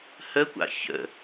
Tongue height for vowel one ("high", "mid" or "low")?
mid